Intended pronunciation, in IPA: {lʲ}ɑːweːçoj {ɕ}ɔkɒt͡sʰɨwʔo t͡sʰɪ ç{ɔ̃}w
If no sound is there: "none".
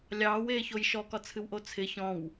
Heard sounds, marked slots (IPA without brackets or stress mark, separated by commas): lʲ, ʃ, ɔ̃